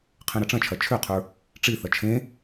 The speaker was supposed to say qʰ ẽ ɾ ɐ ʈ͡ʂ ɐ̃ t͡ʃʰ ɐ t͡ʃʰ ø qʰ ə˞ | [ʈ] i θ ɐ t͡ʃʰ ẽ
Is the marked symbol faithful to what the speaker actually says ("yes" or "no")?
no